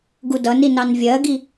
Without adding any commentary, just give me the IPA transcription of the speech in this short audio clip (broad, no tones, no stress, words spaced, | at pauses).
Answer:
ɡudʌni nɑnvʲɜɡi